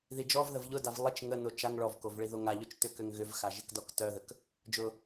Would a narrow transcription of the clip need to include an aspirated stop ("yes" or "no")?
no